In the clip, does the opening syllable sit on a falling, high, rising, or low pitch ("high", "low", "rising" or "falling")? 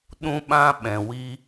high